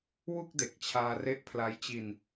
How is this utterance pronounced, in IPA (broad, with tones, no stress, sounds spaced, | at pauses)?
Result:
w u˥˩ k̚ d e˨˩ k̚ t͡ɕʰ aː˧ r e˦˥ ʔ pʰ l a˦˥ j t͡ɕ i˧ n